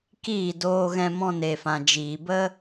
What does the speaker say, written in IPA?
k iː˦˨ d oː˧ ɣ ɛ̃˧ m ɔ̃˧ n e˨ f ã˨ d͡ʒ iː˨ b ə˦

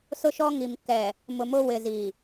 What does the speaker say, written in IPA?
s ʊ˦ ʃ ɔ˦ ŋ i˨ m k ɛ˨ | m ʊ˨ m ʊ˦ w ɪ˨ z i˨

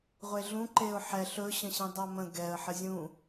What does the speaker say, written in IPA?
ʁʷ e ɮ ũ ǃ e ʊ̯ ħ ɛ ɬ ɵ ɕ ə̃ ɕ ĩ dˤ a m ə̃ ɡ ɛ ə̯ ħ ə zʲ ũ

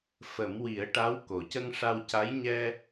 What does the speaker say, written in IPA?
f ə˨˩˦ m w i˨˩˦ ə̯ ʈ a˧˥ w k o˨˩ c ə˧ ŋ ʂ a˧ w c a˧˥ j ɲ ɛ˧

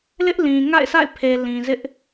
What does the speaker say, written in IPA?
l ɪ˦ ʔ l ĩ˨ ŋ a̰˦˨ ɪ̯ s a̰˦˨ ɪ̯ pʰ e˨ l ĩ˨ z ɪ˦ ʔ

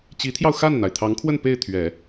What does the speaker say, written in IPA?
t͡ɕ i˧˥ t̪ʰ j ɑ˧ ʊ̯ x a˥˩ n n̪ a˩ ɪ̯ t̪ʰ ɑ˧˥ ŋ kʰ w ə˥˧ n p e˥˩ ɪ̯ t̪ʰ ɥ ɛ˨˩˦

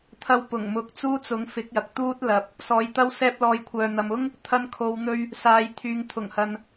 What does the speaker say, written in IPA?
t̪ʰ ɐ˧ w p ʊ˨˩ ŋ m ʊ˨˥ k̚ t͡s uː˥ t͡s ʊ˨˥ ŋ f ɪ˨˥ k̚ j ɐ˨ k̚ t̪ uː˥ t̚ l ɐ˨˥ p̚ | s ɔː˨˥ j t̪ ɐ˥ w s ɛː˧ p̚ l ɔː˨ j kʷʰ œː˨ n̪ ɐ˨ m ʊ˥ ŋ | t̪ʰ ɐ˧ n kʰ o˨˧ w n̪ ɵ˧ ɥ | s aː˨ j t̪ʰ yː˨ ŋ t̪ʰ ʊ˨˩ ŋ h ɐ˨ n

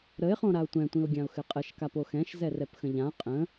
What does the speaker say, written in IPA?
ɾ ə ɪ̯ χ õ ɾ a ʊ̯ tʷ ɛ̃ tʷ ĩ ʊ̯ ɡʲ ã ʊ̯ x ɘ qʼ ə ʃ k a p o x ɛ̃ ʃ z ɛ r ɛ p x ə̃ ʎ ã qʼ ə̃

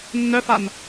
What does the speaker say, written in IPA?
nː œ f a n

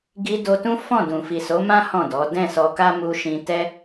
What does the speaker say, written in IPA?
ɡ i˧ d o˧ t ũ˦ f ɔ̃˦˨ d ũ˨ f i˨ s o˨˦ m ã˦ h ɔ̃˦˨ d ɔ˨˦ d ɛ̃˦˨ s ɔ˧ k a˦ m u˧ ʃ ĩ˧ t ɛ˦

